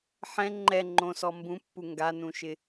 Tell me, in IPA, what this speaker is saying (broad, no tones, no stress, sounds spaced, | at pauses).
ħ ɛ̃ ŋ͡ǃ ɛ ŋ͡ǃ õ s ɔ m b ũ pː u ŋ ɡ a n ũ ʃ ɪ